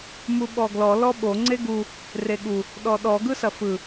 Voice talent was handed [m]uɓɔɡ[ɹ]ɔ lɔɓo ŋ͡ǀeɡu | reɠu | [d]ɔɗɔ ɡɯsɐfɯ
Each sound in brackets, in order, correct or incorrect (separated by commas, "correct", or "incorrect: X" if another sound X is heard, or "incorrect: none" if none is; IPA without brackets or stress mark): correct, incorrect: l, incorrect: ɗ